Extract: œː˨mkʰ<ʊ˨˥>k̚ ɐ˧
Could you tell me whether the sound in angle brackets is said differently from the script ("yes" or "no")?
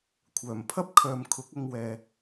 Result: no